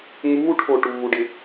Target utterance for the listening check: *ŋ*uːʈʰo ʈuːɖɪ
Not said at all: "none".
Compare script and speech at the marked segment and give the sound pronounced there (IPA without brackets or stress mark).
ŋ